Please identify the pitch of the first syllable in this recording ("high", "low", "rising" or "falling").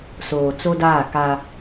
low